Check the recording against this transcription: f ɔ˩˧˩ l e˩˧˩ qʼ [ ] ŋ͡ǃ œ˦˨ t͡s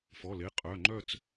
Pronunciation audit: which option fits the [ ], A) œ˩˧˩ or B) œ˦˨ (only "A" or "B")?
A